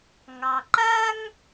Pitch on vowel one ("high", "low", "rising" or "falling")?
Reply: low